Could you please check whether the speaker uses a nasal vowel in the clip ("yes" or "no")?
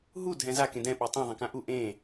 yes